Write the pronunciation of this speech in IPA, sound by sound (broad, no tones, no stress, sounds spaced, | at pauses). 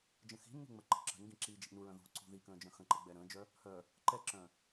d͡ʒ ə̃ x i̤ nː ṳ ŋ͡m ə ǃ ə̤ ǁ ə̤ n ɡ ĩ ǁ iː d͡ʒ i̤ ʔ n u ɹ œ̃ ð ṳ ǀ ṳ ð i k ə̃ː d͡ʒ œ̃ x ə̃ ǃ ə ɡ͡b ɛ ɾ ə̃ː d͡ʒ œ | h œ | ǃ ɛ ǁ œ̃